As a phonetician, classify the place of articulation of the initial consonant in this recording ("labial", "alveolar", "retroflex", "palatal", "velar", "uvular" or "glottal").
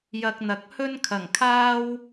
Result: palatal